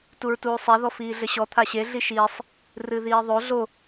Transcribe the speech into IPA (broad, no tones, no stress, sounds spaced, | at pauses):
t u ɹ t uː sˤ ɛ ð ɔ f iː ɮ ɘ ɕ ɔ t̪ʰ a ɕ e ɮ i ʃ iː sˤ | r ɨ ð iː ðˤ o ɮ o